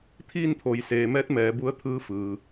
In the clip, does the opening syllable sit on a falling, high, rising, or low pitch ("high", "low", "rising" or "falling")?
falling